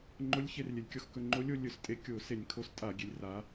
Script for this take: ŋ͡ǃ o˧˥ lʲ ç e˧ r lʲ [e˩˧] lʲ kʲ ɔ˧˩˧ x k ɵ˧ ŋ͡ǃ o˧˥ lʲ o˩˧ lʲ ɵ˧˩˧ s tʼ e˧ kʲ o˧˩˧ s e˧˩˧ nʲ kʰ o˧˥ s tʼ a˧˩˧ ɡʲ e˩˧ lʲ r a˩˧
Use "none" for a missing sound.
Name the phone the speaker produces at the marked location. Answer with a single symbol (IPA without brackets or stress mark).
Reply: e˩˧